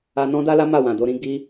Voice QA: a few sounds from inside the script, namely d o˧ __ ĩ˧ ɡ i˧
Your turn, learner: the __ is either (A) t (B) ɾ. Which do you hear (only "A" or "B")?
B